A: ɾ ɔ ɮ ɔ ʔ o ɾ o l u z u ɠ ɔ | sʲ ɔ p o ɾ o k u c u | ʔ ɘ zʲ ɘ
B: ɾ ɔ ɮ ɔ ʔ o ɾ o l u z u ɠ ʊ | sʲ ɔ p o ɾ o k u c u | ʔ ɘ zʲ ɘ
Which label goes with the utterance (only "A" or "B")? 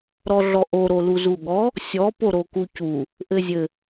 A